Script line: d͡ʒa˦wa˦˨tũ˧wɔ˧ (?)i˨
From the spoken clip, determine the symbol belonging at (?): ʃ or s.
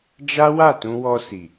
s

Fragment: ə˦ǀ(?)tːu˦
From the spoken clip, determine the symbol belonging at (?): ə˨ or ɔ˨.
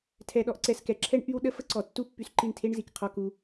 ɔ˨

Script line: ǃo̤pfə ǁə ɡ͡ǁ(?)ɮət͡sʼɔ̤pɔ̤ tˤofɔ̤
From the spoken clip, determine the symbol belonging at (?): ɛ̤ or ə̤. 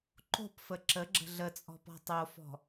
ə̤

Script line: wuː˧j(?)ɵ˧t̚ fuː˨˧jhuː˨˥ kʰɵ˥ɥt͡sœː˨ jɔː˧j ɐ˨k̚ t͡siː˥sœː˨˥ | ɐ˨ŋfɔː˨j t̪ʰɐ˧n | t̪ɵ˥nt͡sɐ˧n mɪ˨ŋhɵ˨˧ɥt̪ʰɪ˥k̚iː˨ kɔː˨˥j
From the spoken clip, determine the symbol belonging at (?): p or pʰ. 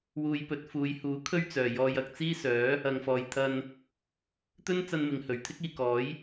p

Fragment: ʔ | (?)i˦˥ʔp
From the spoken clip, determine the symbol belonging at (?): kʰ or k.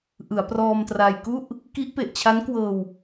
k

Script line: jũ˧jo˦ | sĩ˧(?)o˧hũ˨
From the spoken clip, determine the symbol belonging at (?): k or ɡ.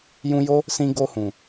ɡ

